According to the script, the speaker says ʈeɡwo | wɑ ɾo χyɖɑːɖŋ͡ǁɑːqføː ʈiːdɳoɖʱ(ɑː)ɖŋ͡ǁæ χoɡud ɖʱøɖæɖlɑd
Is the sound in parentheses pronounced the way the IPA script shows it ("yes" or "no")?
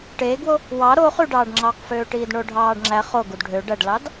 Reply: yes